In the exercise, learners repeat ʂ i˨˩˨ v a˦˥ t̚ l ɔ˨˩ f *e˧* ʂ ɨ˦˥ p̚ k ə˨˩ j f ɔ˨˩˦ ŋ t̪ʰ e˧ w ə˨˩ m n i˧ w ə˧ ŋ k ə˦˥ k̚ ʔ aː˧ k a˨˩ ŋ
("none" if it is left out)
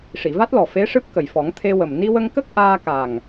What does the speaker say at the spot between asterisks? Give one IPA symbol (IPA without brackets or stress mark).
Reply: e˧˥